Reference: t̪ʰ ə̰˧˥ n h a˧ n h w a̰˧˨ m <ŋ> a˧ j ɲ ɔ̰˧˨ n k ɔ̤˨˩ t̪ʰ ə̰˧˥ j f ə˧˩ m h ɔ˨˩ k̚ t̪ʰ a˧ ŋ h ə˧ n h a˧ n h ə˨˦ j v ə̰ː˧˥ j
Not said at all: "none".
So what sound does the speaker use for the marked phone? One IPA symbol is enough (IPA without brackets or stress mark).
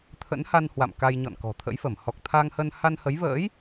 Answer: k